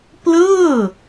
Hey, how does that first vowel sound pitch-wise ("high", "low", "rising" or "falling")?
falling